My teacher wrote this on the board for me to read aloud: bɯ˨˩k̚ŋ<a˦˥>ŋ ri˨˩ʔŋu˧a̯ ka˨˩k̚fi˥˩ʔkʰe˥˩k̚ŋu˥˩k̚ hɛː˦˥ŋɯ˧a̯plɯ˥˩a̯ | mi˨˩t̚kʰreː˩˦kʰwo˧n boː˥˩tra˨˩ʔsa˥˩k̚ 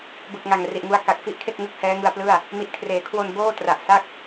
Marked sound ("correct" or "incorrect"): incorrect